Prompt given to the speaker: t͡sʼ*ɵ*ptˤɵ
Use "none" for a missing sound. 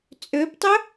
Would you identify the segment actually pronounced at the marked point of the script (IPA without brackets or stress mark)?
ø